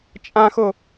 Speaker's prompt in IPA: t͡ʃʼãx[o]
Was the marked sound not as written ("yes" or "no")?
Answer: no